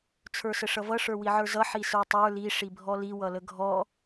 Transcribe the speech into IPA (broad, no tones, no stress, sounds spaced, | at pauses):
t͡sʰ ə˞ s ə ʂ ʌ v ʌ ʂ ə˞ w i ʕ ə˞ z ʌ ħ i s ə˞ tˤ ə˞ l i ʂ i bʱ ɔ l i w ʌ l ə ɡʱ ɔ